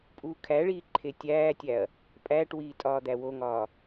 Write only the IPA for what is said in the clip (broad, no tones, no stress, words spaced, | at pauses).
pʼuːkʰæɭiː ǃʰetʲæːtʲæɐ̯ | pʼæːʈwiː tʼɒːd̪æwoŋɒː